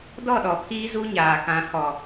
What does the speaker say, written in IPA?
dɔ˦˨ɗɔ˨pʰiː˦ zu˦ɲaː˨kã˨˦ hɔ˨

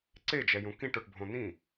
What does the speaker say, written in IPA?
ǀed͡ʒɛjũ kĩʈoʈbʱõ n̪ĩ

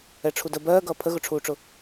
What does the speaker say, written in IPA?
ɛʈ͡ʂʰudə bɜːɡʌː pʰəɣʊʈ͡ʂʰuːʈ͡ʂʊ

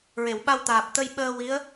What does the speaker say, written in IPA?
ɹe˨˩˨wɓa˧wt̪aː˨˩p̚ t̪ə˧jɓəː˧ wi˧˥ə̯

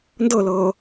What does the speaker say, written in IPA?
ndɤlɤː

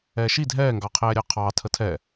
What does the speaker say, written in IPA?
ɛːʃi dʱɛːŋɡɑqʰɛːɾʲɑ qʰɑːtʰə tʰɛ

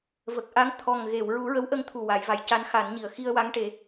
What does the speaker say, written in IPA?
və˨˩k̚ʔa˧˥ŋ t̪ʰɔ˨˩ŋɣe˨˩˨w ɹu˨˩˦ɹə˧˥wʔə˧ŋ t̪ʰu˨˩wa˨˩˨j va˨˩˨jca˧˥n xa˨˩˦nɲi˨˩ə̯ xi˧ə̯wa˧˥ŋʈe˨˩˦

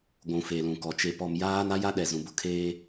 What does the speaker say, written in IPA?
ɡʷũ˨fe˨lũ˨kɔ˨ t͡ʃe˨pɔ˨mjaː˦n a˦ja˦ɗɛ˨ zũ˨bʊ˦kʰeː˦

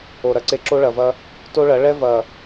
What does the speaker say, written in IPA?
o˨ɾɐ˦ǀe˦ ǁo˦ɭɐ˨vɐ˦ | to˦ɭɐ˨˦ ɭɛ˦ vɐ˨

